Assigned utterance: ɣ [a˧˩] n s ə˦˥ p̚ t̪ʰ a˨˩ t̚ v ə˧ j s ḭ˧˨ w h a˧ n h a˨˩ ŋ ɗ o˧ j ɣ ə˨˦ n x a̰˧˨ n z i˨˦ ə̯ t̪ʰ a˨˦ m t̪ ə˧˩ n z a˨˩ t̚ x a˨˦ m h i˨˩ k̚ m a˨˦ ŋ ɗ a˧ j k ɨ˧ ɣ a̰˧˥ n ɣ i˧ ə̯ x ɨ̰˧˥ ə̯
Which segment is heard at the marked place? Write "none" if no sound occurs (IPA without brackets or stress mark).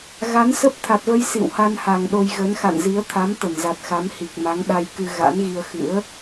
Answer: a˨˦